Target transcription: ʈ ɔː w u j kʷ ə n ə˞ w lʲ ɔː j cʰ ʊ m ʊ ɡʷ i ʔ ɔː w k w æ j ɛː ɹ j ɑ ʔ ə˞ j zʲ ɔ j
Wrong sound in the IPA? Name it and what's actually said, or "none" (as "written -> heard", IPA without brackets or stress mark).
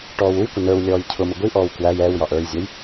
ɹ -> w